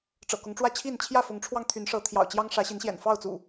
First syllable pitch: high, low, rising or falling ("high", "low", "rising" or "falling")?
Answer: low